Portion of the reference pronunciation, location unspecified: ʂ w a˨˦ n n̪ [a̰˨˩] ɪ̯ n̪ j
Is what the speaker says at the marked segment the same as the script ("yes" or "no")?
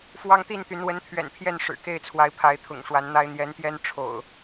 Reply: no